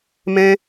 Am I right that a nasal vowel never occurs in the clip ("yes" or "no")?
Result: no